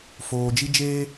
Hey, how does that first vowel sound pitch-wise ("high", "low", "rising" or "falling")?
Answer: low